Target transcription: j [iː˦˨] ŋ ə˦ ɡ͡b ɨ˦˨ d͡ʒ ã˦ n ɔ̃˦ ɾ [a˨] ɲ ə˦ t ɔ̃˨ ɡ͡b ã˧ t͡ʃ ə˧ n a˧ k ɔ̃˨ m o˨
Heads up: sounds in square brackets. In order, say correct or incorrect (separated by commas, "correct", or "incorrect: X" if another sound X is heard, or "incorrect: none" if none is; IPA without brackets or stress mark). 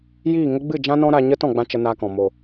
correct, incorrect: a˧